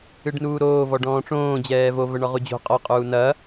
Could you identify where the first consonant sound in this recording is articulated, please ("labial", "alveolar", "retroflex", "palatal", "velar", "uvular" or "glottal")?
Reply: retroflex